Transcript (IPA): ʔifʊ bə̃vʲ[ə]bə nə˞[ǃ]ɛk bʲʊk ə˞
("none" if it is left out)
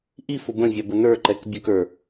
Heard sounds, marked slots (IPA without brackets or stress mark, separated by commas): ɑ, ǃ